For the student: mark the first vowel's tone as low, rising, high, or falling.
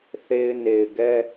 high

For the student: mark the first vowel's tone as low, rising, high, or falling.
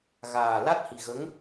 low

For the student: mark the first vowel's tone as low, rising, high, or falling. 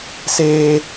high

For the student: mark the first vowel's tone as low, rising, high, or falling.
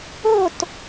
falling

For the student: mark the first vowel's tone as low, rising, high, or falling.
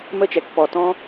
falling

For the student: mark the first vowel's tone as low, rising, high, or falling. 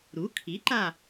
rising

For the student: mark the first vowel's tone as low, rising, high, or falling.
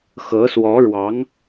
rising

